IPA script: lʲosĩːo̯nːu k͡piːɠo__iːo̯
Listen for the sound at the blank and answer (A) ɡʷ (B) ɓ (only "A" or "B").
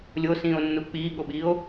B